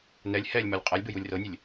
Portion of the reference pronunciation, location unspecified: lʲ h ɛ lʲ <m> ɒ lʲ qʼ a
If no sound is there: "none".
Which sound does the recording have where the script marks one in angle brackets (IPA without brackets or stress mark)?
m